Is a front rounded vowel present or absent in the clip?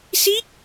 absent